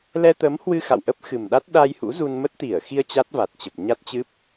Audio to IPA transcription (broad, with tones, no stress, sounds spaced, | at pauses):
l ɛ˧ t̪ ə˨˦ m h w ɨ˧ x a̰˧˨ w ʔ ə˦˥ p̚ x ɨ˨˩ m ɗ a˦˥ t̚ ɗ a˧ j h ṵ˧˥ z u˧ n m ə˦˥ t̚ t̪ i˧˩ ə̯ x i˧ ə̯ t͡ɕ a˦˥ t̚ v a˨˩ t̚ t͡ɕ ə˨˩ p̚ ɲ a˦˥ t̚ t͡ɕ ɨ˦˥ p̚